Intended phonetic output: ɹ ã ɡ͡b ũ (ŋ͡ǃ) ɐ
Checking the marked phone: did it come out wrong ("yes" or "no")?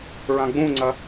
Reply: yes